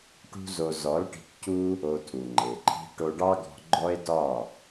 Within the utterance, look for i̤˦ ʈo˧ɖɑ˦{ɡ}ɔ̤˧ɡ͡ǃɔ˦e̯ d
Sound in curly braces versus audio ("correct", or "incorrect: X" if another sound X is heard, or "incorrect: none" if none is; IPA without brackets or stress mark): correct